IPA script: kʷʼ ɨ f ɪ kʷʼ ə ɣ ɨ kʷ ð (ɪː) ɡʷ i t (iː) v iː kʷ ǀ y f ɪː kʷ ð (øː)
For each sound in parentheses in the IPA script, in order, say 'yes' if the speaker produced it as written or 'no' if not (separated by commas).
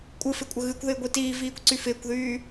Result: yes, yes, no